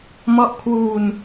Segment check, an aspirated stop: present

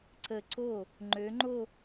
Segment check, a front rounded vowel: present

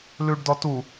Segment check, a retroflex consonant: present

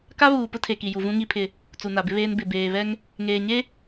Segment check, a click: absent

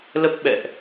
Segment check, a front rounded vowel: absent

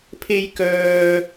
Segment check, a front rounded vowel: present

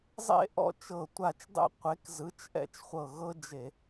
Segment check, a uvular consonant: present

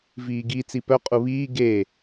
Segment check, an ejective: present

